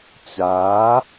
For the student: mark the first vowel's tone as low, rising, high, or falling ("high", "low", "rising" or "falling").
rising